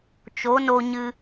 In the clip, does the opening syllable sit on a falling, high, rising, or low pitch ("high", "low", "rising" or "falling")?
rising